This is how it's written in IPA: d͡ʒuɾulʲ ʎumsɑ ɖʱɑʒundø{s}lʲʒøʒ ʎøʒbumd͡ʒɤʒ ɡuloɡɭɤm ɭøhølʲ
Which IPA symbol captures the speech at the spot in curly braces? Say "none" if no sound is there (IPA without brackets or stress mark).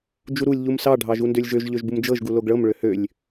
none